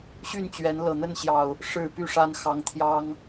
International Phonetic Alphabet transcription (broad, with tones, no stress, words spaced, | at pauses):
ɕy˥˨nt͡ɕɥɛ˨˦n lɤ˨˩n̪ə˥˨nɕjɑ˨˩ʊ̯ | ʂɻ̩˨˩ py˥˨ʂa˦n xɑ˨˦ŋt̪ʰjɑ˦ŋ